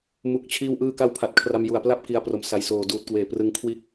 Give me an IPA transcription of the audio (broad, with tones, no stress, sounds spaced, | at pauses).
m u˨˩ k̚ t͡ɕʰ iː˧ w ʔ ɯː˧ k a˦˥ w pʰ a˨˩ t̚ kʰ r a˧ m j u˨˩ a̯ p l a˦˥ p̚ k i˧ a̯ p r o˩˦ m s a˨˩ j s oː˨˩ d uː˨˩ t̚ k w eː˨˩ p r ɯ˧ ŋ kʰ w iː˥˩ k̚